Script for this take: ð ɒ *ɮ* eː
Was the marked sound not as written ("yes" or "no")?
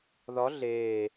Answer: no